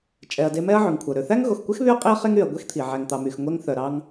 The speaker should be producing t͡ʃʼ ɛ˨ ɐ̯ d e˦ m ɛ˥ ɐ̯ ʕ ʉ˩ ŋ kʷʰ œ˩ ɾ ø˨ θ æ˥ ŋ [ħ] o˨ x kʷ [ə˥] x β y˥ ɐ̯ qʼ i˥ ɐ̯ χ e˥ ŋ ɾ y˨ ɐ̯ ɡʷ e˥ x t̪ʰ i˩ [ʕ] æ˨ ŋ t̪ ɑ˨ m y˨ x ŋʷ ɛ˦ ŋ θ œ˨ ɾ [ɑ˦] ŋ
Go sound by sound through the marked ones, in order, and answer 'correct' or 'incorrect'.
incorrect: ɣ, incorrect: ɛ˥, correct, correct

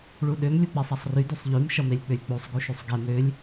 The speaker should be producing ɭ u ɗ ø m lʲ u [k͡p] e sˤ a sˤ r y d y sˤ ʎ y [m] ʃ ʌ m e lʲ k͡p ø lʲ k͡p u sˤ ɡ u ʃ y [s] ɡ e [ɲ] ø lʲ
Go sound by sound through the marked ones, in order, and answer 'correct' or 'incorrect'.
correct, correct, incorrect: sˤ, incorrect: m

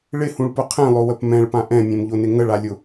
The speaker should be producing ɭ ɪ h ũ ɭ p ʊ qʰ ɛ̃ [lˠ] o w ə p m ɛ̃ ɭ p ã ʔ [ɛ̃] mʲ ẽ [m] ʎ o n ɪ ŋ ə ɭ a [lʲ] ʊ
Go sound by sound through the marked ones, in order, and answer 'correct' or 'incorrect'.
correct, correct, correct, correct

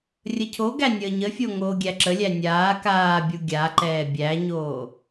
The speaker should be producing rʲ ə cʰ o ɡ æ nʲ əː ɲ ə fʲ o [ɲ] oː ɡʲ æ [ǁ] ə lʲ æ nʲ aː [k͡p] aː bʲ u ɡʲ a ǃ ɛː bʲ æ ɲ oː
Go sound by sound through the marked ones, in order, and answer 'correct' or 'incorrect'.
incorrect: ŋ, correct, incorrect: k

